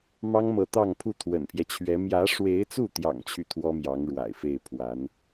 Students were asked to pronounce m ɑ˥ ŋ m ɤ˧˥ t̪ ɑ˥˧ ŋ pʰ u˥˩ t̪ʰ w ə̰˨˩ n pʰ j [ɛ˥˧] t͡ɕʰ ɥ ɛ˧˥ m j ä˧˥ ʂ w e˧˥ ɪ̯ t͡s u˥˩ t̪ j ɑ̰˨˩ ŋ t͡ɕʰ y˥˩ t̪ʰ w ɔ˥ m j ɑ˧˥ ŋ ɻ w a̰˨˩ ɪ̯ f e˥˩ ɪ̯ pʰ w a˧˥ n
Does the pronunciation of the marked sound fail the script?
yes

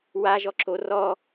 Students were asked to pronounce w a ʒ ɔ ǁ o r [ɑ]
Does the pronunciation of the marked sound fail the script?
yes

